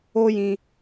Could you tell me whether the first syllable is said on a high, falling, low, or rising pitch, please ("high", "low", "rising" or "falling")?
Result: high